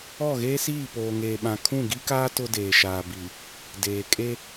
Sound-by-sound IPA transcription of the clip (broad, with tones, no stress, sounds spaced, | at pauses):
ɔ˦˨ ɣ eː˦ s iː˦˨ p oː˨ ŋ eː˨ ɓ ã˨ kʰ ũ˦˨ ɡ i˦ k aː˦ t ʊ˦ d eː˨ ʃ aː˨ b i˨ | d eː˨ kʼ e˦